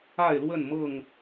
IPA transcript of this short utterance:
a˥˨ ɪ̯ l w ə˥˨ n m ɤ˥˨ ŋ

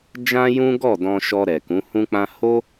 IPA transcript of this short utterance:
d͡ʒ ã˦ j ũ˦ ɡ ɔ˦˨ d ɔ̃˧ ʃ ɔ˧ ɾ ɛ˨ k ũ˨˦ h ũ˦ k͡p ã˦ h o˦

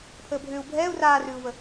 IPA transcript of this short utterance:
pʰ əː bʱ ʏː u̯ bʱ ɛː u̯ r aː r ʉː u̯ v ə

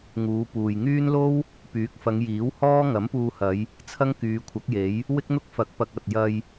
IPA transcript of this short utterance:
ŋ uː˨˧ p uː˨ j ŋ yː˥ n l o˥ w | p yː˨˥ k̚ f ɐ˨˧ ŋ j iː˨˥ w h ɔː˥ ŋ ɐ˨˥ m p uː˧ h ɐ˨˧ j | t͡sʰ ɐ˥ ŋ k yː˨˧ kʷʰ ɐ˨˥ k̚ j e˨˥ j | w ɪ˥ k̚ n̪ ʊ˥ k̚ f ɐ˨˥ k̚ p ɐ˨ k̚ ɐ˨ t̚ j ɐ˧ j

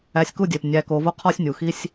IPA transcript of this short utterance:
æ˧ sʲ k u˦ dʲ e˨ p nʲ æ˨ k o˨ v o˧ qʰ ɒ˦ sʲ nʲ u˨ x i˦ sʲ

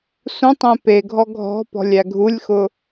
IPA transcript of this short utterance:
s ũ tˤ ẽ p e ɡʱ ɔ ɡʱ ɔ̤ p ɔ̤ lʲ æ ɡʱ u lʲ x ʊ

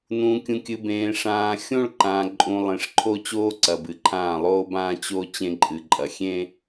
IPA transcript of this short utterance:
n ũː˨ kʲ ũ˨ kʲ ɨ˨ b ẽː˨ ʂ ãː˨ xʲ õ˦ ɭ ǃ ãː˨ ǃʼ ũ˨ lˠ ẽ˨ ʂ ǃʰ o˦ t͡ɕ oː˦ ǀ ɐ˨ b ɨ˨ ǃʰ ãː˦˨ lˠ oː˦ b ãː˦ t͡ɕ o˦ t͡ɕ ẽ˦ ǃʼ ɨ˨ ǃʼ ɐ˨ xʲ ẽ˦

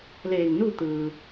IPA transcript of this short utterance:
l eː˧˩ ŋ n u˥˨ t̪ ɯː˩

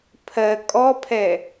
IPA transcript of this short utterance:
pʰ ɜ kʼ ɔ pʰ ɛ

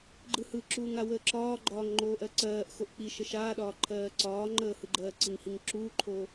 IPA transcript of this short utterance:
ɡ͡ǃ ɯ h ɯ ǁ uː ŋ a w əː ǁ ɒː ɡ͡ǃ ɒː ŋ ŋ͡ǃ oː ʔ ɜ ǀ ɜː ʔ x o ʔ k͡p i ʃ ə ʃ aː ɗ ɒː ǃʰ ɜː ǀ ɒː ŋ͡ǃ əː h ɯ ɡ͡ǃ ɜː ǀ i ŋ h i ŋ ǁ uː ǃʰ o

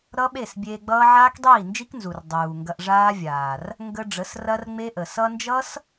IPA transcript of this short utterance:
ɾ ʌ˦ ɓ e˦˨ s bʲ eː˧ ɡ͡b ʌː˦ ʕ aː˦ k dˤ iː˦˨ n d͡ʒ i˦ k n z u˨ r dˤ uː˨ ŋ ɡ ɐ˧ ʔ ʐ aː˦ vʲ aː˨ r | ŋ ɡ ə˧ ɖ͡ʐ ə˨˦ s r ɐ˦ r ŋ͡m e˦ ʔ ə˨ s ʌ˧ n d͡ʒ ʌ˦ s

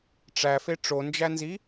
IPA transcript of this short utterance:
ʈ͡ʂ æ f e ʈ͡ʂ o n d͡ʒ æ n z i

